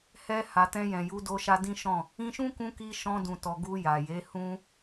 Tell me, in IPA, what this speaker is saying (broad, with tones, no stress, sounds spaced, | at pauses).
h ɛ˧ h a˨ t ɛ̃˧ j ɛ̃˨ j u˨˦ d o˧ ʃ a˧ d ĩ˦ ʃ ɔ̃˦˨ | ĩ˧ ʃ ũ˦ k ũ˧ k i˧ ʃ ɔ̃˧ d ũ˨ t ɔ˨ ɡ u˧ j a˨ j e˨˦ h ũ˦